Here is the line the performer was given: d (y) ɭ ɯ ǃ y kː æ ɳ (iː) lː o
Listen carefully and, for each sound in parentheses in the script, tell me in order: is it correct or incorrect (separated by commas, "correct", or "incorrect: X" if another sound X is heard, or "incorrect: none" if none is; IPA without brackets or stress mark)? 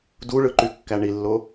incorrect: u, incorrect: i